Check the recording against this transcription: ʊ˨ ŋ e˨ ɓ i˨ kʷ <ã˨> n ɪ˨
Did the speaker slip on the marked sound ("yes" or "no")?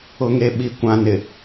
no